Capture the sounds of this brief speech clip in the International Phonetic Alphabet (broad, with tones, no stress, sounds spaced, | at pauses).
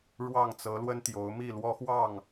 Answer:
ɻ w ɑ˥˨ ŋ t͡s ɤ˨˦ l w ə˦ n t̪ j o˨˦ ʊ̯ m i˥˨ l w ɔ˦ x w ɑ˥˨ ŋ